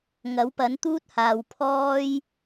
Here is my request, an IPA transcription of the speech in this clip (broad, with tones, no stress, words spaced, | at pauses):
ŋɐ˨˥wpɐ˨˥nt̪uː˥t̚haː˨w pʰɔː˥j